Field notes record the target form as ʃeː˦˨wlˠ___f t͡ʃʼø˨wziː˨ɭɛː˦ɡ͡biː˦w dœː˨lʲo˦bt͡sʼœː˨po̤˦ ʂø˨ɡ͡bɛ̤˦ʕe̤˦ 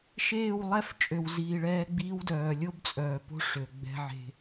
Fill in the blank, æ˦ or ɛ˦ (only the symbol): ɛ˦